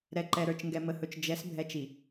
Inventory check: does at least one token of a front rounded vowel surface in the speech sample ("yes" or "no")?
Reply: no